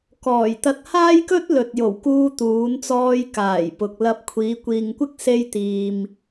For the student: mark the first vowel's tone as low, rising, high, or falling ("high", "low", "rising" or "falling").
low